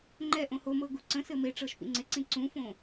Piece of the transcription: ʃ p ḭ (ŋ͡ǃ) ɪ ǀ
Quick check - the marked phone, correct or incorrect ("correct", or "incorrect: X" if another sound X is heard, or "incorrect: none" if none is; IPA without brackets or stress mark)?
incorrect: ŋ͡ǀ